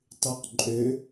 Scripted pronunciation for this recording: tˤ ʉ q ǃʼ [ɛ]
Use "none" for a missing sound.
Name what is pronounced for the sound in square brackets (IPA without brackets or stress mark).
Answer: ø